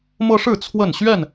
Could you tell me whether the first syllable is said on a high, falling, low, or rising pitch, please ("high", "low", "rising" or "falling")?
high